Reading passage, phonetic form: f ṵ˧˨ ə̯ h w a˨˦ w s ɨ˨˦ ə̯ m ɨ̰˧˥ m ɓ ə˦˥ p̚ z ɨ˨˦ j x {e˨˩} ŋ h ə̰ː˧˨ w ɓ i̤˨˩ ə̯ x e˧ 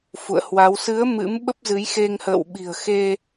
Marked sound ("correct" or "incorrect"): incorrect